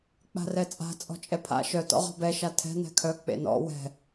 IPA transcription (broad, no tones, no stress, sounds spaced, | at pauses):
k͡p a̤ r ɛ t͡sʼ a̤ t͡sʼ ɔ̤ t͡ʃʼ ɛ pʰ a̰ ʃ œ t ɔ̰ ʁ ɔ̤ b ɛ ʃ a tʰ ɛ̤ n ɛ̤ kʰ œ k͡p ḛ n ɔ̰ w ɛ̤